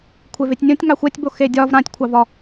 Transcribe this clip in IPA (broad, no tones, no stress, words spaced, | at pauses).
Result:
kʷʰevetʲnʲõtʲ ŋɑxʷɛtʲbo xedʲɒv ɾãtʲkʷʰɑvɒ